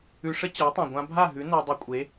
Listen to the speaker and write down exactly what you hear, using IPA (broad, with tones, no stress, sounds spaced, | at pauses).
ʉ˧ ʂ ə˦ t͡ɕ a˨˦ tˤ ã˨ ɡʷ ã˧ bʱ a˦˨ ɦ ʉ˨˦ n o˧ dˤ ʉ˧ kʷʼ e˨˦